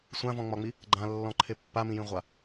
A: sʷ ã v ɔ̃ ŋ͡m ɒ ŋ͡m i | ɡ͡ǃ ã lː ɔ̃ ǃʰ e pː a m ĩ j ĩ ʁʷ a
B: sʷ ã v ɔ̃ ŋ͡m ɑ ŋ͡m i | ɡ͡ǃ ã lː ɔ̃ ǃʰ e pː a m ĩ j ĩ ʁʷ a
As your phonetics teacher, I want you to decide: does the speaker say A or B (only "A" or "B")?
A